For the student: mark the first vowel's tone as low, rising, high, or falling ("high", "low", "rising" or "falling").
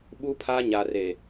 high